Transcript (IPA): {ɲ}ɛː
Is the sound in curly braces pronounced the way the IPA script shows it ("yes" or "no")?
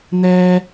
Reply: no